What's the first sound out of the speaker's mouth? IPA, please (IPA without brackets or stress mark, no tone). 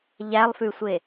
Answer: ʎ